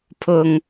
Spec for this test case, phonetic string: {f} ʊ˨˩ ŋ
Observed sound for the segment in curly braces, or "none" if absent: pʰ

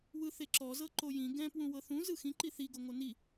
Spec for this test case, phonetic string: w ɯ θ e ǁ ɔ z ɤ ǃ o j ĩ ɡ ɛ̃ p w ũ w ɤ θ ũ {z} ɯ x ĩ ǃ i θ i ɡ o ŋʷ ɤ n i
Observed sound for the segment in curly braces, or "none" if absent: z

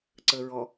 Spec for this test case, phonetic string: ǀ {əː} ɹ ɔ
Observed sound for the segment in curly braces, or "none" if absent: əː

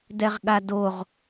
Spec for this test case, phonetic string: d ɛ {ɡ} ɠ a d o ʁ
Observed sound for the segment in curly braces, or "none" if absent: ʁ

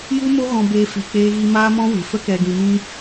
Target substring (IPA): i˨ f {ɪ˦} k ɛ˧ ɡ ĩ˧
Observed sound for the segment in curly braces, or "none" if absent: ə˦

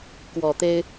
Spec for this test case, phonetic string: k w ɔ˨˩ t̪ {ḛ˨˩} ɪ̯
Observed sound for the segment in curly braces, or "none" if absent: e˦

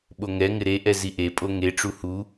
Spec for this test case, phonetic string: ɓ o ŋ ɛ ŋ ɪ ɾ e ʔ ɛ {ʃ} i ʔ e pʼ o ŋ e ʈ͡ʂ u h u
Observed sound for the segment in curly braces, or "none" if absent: z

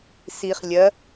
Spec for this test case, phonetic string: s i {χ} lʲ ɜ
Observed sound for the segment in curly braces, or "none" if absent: χ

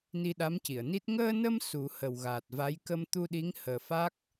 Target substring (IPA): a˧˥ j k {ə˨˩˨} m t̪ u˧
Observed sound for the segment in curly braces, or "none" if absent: ə˧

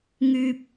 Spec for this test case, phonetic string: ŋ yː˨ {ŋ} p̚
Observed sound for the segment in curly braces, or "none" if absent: none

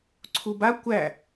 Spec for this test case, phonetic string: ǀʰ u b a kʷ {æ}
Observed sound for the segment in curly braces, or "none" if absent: æ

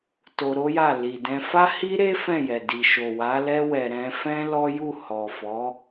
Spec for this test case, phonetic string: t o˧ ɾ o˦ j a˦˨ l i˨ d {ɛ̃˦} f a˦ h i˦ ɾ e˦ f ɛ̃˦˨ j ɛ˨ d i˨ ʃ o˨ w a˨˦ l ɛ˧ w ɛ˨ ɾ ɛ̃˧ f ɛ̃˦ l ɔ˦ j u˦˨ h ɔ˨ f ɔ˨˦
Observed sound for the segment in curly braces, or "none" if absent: ɛ̃˧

